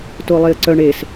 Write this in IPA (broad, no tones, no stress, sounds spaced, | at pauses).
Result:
t o lˠ e ə̯ ǀ œ ɳ e s